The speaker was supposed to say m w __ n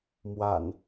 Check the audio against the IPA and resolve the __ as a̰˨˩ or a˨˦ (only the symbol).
a̰˨˩